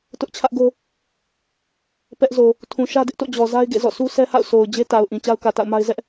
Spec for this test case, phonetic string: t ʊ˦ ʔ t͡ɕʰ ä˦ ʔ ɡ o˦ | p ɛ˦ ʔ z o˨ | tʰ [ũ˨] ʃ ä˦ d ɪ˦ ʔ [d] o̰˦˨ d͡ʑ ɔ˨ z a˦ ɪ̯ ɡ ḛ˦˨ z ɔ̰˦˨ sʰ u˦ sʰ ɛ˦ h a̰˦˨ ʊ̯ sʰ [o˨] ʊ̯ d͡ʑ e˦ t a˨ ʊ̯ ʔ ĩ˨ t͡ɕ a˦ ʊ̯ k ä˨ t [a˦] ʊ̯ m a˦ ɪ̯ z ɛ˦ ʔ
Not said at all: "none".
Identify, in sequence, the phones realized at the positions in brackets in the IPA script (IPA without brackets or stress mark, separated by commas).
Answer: ũ˨, t, o˨, a̰˦˨